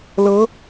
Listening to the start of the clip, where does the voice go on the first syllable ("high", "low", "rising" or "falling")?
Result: rising